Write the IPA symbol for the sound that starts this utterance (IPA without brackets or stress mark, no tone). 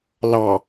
l